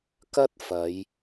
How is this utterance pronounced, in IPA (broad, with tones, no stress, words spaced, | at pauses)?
kɐ˥t̚ fɐ˨˧j